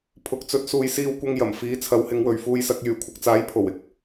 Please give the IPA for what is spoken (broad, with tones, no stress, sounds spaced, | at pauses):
pʰ ʊ˨ k̚ t͡s ɵ˨˥ t̚ s uː˨ j s iː˧ w kʷ ɐ˧ ŋ j ɐ˨˩ m f iː˨˥ t͡sʰ ɐ˨˧ w h ɪ˨˧ ŋ w ɵ˨ ɥ f uː˧ j s ɐ˨˥ k̚ j yː˨˩ kʷʰ ɐ˧ k̚ t͡s aː˨˥ j pʰ o˨˩ w ɪ˨ k̚